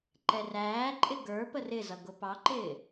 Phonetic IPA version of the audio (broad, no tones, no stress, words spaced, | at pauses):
ǃɛræːǃʼɪ ɡə˞ pərɪzʌ ɡʊpɑǃɪː